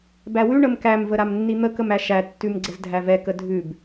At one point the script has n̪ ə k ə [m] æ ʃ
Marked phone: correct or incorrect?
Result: correct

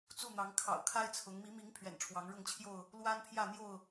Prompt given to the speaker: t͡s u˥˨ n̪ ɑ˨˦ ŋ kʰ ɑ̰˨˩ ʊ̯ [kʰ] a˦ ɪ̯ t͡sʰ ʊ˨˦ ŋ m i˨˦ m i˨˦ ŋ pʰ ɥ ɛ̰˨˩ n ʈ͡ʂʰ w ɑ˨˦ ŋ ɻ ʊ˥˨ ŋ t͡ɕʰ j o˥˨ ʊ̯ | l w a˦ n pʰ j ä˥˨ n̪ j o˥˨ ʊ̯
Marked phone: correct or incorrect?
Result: correct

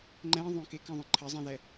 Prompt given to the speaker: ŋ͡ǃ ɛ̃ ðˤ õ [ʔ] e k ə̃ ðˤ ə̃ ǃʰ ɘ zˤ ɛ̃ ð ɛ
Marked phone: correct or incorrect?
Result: incorrect: k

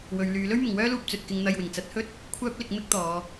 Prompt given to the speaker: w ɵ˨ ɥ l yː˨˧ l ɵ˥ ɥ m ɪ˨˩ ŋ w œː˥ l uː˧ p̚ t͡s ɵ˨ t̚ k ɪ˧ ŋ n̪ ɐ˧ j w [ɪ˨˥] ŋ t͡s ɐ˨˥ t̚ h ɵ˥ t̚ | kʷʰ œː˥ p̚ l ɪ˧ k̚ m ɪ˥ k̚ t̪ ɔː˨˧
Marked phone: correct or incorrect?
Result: incorrect: ɪ˨˩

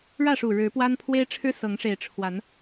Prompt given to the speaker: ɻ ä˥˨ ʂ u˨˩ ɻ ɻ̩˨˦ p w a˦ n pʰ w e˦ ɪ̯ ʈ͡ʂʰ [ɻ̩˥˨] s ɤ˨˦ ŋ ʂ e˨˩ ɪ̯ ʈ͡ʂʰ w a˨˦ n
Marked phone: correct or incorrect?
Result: incorrect: ɻ̩˦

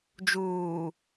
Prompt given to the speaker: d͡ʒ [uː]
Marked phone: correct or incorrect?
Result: correct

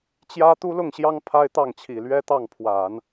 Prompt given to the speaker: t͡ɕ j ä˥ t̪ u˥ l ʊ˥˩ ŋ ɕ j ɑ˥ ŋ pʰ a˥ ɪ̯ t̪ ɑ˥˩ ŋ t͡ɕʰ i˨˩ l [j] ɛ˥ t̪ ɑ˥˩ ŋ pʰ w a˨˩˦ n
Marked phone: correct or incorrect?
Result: incorrect: ɥ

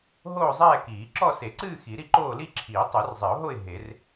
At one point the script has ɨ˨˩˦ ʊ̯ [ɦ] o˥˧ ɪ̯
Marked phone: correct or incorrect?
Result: correct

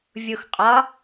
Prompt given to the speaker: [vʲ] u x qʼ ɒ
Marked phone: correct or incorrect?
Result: correct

